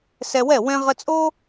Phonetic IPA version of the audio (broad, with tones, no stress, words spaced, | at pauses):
sɛ˧wɛ˥˩ wɛ̃˥ʁə˥ t͡sʼo˥